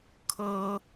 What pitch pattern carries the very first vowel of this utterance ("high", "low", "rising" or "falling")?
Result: high